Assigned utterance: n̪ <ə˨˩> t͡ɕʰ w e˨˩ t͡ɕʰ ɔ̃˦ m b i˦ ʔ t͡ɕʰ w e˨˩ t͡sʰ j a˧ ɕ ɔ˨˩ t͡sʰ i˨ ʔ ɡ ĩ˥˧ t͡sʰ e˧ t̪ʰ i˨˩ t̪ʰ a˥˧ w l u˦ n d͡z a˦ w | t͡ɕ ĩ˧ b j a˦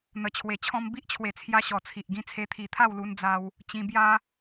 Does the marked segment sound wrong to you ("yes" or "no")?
no